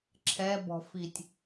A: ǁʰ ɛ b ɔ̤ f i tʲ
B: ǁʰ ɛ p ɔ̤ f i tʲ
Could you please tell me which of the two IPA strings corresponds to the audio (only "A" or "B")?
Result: A